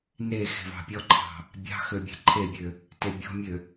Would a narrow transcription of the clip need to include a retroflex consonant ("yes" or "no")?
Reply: no